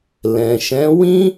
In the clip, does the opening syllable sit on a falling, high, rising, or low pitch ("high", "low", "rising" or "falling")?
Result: low